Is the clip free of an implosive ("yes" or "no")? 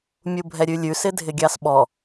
no